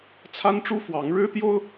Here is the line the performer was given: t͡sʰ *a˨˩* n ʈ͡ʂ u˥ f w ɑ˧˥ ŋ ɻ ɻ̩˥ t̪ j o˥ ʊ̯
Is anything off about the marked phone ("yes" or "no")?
yes